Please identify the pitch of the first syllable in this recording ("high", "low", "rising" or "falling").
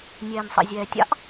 low